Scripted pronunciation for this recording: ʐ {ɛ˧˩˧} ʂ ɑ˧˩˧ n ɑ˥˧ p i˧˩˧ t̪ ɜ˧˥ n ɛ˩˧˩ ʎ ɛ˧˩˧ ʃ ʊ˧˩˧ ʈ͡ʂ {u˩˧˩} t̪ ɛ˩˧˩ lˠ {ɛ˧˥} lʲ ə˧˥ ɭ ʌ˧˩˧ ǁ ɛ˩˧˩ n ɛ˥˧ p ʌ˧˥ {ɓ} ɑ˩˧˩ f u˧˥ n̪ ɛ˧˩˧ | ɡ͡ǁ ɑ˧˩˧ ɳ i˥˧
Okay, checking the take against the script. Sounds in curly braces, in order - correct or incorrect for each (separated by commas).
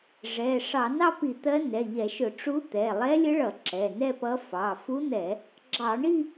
incorrect, incorrect, correct, incorrect